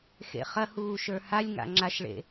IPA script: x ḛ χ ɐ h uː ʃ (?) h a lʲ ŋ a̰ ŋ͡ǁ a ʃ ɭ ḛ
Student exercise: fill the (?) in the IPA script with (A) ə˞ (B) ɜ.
A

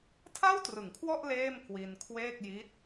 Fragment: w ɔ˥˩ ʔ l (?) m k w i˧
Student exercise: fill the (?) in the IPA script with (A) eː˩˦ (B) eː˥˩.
B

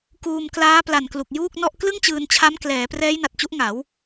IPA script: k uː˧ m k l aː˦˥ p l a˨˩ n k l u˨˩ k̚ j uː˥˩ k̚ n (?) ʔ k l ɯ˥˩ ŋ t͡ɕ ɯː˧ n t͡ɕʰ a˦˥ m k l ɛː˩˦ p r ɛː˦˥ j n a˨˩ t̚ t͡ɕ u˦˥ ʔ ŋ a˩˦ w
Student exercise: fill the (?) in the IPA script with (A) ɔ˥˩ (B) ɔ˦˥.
A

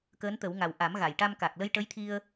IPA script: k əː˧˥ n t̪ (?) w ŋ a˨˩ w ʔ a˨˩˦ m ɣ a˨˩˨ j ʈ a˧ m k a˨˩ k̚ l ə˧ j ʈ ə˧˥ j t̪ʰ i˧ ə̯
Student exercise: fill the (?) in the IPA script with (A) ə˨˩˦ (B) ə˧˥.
A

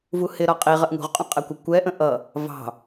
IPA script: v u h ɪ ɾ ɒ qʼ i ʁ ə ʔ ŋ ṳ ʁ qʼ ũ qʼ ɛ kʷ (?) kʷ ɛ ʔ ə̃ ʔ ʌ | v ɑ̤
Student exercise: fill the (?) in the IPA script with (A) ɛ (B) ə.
B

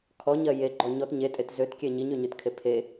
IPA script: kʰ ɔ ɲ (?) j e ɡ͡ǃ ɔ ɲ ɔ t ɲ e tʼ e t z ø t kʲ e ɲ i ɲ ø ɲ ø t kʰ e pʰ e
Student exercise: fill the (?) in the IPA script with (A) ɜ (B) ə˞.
A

